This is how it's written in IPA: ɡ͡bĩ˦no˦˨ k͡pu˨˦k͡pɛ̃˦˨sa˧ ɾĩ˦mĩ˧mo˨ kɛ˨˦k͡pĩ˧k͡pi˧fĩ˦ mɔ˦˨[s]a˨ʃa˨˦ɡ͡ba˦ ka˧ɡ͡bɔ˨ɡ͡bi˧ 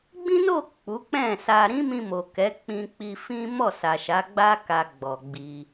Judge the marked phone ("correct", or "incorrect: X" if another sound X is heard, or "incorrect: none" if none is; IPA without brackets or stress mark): correct